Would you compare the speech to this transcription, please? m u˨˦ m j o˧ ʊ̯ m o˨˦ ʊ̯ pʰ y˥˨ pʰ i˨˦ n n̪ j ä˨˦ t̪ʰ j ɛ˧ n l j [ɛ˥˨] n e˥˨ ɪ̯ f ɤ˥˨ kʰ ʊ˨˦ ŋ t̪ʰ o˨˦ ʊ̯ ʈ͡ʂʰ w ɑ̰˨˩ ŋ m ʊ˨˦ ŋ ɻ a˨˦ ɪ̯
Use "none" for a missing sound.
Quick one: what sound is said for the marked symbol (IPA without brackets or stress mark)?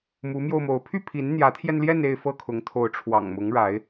ɛ˥˨